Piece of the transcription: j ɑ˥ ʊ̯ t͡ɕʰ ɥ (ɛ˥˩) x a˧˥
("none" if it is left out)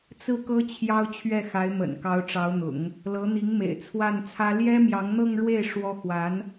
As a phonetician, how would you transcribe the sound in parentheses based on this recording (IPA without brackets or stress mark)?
ɛ˥˩